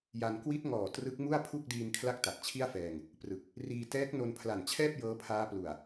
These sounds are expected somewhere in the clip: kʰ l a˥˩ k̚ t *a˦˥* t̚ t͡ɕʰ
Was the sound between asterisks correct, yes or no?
no